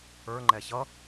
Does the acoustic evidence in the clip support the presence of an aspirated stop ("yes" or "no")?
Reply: no